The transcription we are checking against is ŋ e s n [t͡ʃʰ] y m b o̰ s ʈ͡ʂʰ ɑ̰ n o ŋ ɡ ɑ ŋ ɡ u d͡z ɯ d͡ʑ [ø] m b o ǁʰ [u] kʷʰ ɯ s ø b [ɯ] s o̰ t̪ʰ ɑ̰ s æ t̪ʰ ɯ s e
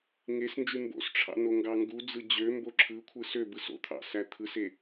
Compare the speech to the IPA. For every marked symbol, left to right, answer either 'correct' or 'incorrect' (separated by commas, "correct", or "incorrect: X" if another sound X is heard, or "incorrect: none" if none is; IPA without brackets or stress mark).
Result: incorrect: d͡ʒ, correct, incorrect: ɯ, correct